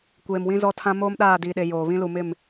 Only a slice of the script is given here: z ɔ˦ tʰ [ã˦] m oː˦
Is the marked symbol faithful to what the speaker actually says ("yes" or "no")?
yes